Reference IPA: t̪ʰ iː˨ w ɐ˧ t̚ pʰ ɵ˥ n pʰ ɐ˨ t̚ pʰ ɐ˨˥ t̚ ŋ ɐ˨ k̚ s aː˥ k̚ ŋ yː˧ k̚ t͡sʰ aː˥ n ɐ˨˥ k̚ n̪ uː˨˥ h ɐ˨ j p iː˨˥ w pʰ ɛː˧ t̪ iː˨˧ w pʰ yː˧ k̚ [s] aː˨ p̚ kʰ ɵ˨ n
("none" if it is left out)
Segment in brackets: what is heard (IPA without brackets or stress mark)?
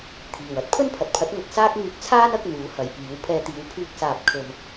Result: s